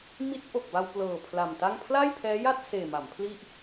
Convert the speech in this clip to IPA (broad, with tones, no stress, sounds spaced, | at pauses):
m i˦˥ t̚ ʔ o˨˩ k̚ b a˧ w p l ɤː˨˩ pʰ l a˨˩ m t a˥˩ ŋ pʰ l aː˥˩ j pʰ ɛː˦˥ j a˥˩ t̚ s eː˨˩ m a˩˦ m pʰ l i˥˩ ʔ